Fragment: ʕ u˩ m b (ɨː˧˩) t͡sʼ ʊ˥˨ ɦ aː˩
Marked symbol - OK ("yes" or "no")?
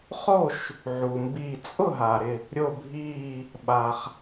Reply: no